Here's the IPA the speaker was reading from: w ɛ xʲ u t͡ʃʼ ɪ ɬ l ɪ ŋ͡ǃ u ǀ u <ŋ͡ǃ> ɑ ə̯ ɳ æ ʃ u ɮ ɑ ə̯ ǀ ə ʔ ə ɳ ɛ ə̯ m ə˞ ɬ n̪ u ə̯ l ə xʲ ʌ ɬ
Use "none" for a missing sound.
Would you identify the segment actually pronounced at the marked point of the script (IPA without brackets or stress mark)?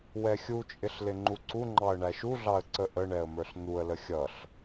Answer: ŋ͡ǃ